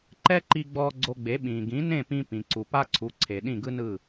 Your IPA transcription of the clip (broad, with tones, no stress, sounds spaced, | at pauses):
ǃ ɛ˥ ǃ i˧ ɡ͡b ɔː˧ ɡ͡ǀ o˧ ɡ͡b e˩˥ ɓ ĩː˩ ɡ ĩ˩˥ n ẽ˥˩ p ĩ˧ p ĩ˩ ǀ u˩ p a˥ ǀʰ u˩˥ ǀʰ e˩ ɗ ĩ˥˩ ɡ ɯ˥ n ɯ˥˩